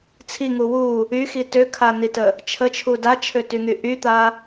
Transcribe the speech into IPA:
t͡sʰ i ŋ u w u | y x i t ø kʰ a n i t ə | t͡ʃʰ ə t͡ʃʰ u d a t͡ʃʰ ø t y ŋ y ʔ y t̪ a

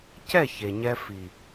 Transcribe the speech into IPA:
c ɛ˦˨ ç e˨ ɲ ɛ˧ f i˨

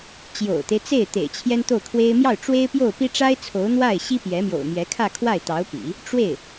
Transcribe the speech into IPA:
t͡ɕ j o̰˨˩ ʊ̯ t̪ e˦ ɪ̯ t͡s e˥˩ ɪ̯ t̪ ḛ˨˩ ɪ̯ t͡ɕʰ j ɛ˥ n t̪ o˥˩ ʊ̯ kʰ w e˥ ɪ̯ m j ɑ˥˩ ʊ̯ ʈ͡ʂ w e˥ ɪ̯ p j o˥˩ ʊ̯ p i˥ ʈ͡ʂ a˥ ɪ̯ t͡sʰ o˧˥ ʊ̯ n̪ w a˥˩ ɪ̯ ɕ i˥ p j ɛ˧˥ m j o̰˨˩ ʊ̯ m j ɛ˧˥ kʰ ä˥˧ kʰ w a˥˩ ɪ̯ t̪ ɑ˧˥ ʊ̯ p ḭ˨˩˦ | ʈ͡ʂ w e˥˩ ɪ̯

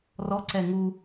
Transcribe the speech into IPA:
r ɔ ǀ ɛ ŋ u

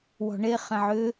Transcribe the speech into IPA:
w ɔ̤ ɳ e χ ɛ̃ ʕ ʏ

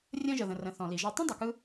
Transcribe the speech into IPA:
rʲ ə̃ː˧ ʒ ə˩ ð ə̃˩ r ə̃˩ θ ɔ̃˩ l i˩ ʒ ɒ˧ tˤ ĩ˥ dˤ ɯ˩ k ɯ˧

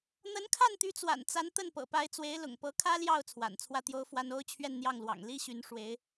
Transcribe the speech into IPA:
n̪ ə˧˥ n kʰ a˥˩ n t̪ y˧˥ t͡s w a̰˨˩ n t͡s a˧˥ n t̪ ə˥˩ n p ɤ̰˨˩ p a˧˥ ɪ̯ t͡s w e˧˥ ɪ̯ l ʊ̰˨˩ ŋ p ɤ˧˥ kʰ ä˥ l j ɑ˥˩ ʊ̯ t͡sʰ w a̰˨˩ n t͡sʰ w ä˥˩ t̪ j o˥ ʊ̯ f w a˥ n o˥ ʊ̯ t͡ɕʰ ɥ ɛ˥˧ n n̪ j ɑ˥˩ ŋ l w ɑ̰˨˩ ŋ l i˥ ɕ y˧˥ n ʂ w e˧˥ ɪ̯

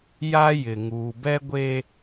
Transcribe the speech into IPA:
j a˦ j ɪ˨ ŋ uː˨ b ɛ˦ ɡʷ e˦

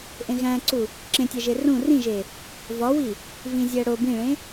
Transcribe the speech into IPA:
ʔ ẽ ɣ æ̃ ǀ u | ǁ ẽ tʲ æ ʒ e r ũ r ĩ ʒ e | v ɒ w i | v ĩ zʲ æ ɽ o b ĩ ɭ ẽ

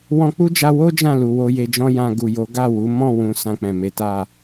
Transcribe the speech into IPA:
w ɔ̃˧ k͡p u˦ d͡ʒ a˧ w o˦ d͡ʒ ã˦˨ l u˨ w o˧ j e˧ d͡ʒ ɔ̃˦ j ã˧ ɡ u˨ j o˨˦ ɡ a˦˨ w u˨˦ m ɔ̃˦˨ w ũ˨ s ã˧ k͡p ɛ̃˨ m e˨˦ t a˦˨

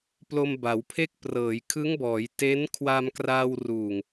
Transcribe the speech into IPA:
p l o˧ m b a˩˦ w pʰ e˥˩ k̚ p r ɤː˩˦ j kʰ ɯ˦˥ ŋ b ɔː˩˦ j t e˦˥ n kʰ w a˧ m k r aː˧ w r uː˨˩ ŋ

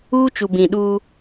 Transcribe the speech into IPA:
uː˦ t͡ʃ u˨ b ĩ˨ ɗ u˦

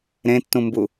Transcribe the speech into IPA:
ɾ ẽ tː ũ m b u

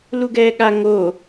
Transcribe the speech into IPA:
l u ɡ ɛː ɠ a ŋ o

